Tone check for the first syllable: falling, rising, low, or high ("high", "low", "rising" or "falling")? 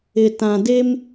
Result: low